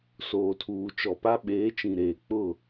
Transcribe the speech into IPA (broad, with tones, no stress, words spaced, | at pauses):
soː˨tʰuː˨t͡ʃɔ˨pa˦ ɓeː˨˦t͡ʃĩ˨ ɾeː˨k͡pʊ˦˨